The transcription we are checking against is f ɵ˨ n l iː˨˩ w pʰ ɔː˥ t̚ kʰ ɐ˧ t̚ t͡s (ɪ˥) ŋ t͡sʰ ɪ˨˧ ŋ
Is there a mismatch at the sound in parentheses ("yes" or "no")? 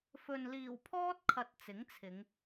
yes